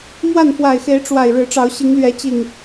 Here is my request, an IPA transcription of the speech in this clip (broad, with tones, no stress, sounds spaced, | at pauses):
m w a˥˨ n f w a˨˩ ɪ̯ x e˨˦ ɪ̯ ʈ͡ʂ w a˨˩ ɪ̯ ɻ ɻ̩˨˦ ʈ͡ʂ ɑ˨˦ ʊ̯ ɕ i˨˦ ŋ l ɥ ɛ˨˦ t͡ɕ i˨˩ ŋ